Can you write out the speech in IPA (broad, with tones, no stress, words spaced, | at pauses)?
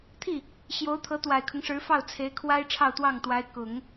t̪ʰi˥˩ | ɕjo˧˥ʊ̯t̪ʰɤ˧˥ t̪wa˨˩ɪ̯kʰʊ˦ŋʂɻ̩˧˥fɑ˥˩ʊ̯ t͡sʰe˧˥ɪ̯kʰwa˥ɪ̯ ʈ͡ʂʰɑ˥˧ʊ̯t̪wɑ˥˩ŋt̪wa˧˥ɪ̯ kʊ˨˩˦ŋ